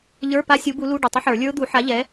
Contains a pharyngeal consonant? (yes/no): yes